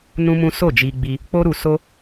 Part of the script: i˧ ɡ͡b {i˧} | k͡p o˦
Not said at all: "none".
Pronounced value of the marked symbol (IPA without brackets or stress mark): i˧